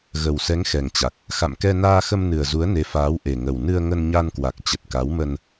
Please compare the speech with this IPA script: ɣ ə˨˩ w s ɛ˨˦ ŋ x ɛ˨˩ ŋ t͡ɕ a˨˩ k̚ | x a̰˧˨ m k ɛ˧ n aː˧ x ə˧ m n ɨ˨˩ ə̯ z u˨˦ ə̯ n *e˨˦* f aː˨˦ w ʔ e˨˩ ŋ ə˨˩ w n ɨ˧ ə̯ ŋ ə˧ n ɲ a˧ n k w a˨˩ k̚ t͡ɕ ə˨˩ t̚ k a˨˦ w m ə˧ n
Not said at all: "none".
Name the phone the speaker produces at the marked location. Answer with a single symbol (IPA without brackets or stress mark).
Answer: e˨˦